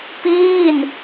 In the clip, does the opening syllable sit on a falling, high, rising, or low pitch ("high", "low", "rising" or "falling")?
falling